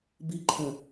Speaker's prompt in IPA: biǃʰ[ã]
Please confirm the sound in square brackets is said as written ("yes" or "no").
no